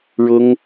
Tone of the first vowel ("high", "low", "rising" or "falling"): high